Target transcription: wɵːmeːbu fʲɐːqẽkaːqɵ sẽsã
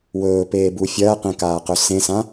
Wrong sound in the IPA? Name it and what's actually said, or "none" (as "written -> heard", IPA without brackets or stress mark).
m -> p